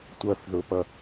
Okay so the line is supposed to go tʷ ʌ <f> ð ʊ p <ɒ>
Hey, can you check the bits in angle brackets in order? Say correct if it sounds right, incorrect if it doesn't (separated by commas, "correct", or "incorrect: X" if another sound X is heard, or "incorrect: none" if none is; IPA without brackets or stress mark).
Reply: incorrect: θ, incorrect: ʌ